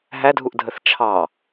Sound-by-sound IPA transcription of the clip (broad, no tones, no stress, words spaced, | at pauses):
ɦædʱuʔdʱəθ t͡ʃʰɑ